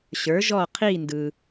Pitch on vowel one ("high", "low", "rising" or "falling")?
rising